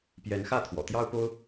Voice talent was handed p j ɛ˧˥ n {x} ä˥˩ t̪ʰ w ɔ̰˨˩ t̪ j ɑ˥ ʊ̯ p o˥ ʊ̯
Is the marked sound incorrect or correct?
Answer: correct